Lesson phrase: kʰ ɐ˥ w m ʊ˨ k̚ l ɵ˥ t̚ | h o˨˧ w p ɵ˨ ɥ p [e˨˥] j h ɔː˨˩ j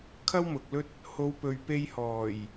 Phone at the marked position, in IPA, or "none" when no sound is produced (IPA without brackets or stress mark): e˧